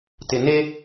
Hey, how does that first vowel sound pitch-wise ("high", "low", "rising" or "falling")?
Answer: low